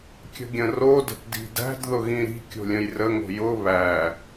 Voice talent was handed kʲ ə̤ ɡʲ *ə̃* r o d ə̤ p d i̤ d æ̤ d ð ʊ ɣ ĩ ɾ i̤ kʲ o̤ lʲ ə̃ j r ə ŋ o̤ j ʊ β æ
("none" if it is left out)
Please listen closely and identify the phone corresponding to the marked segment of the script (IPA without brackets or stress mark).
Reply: ə̃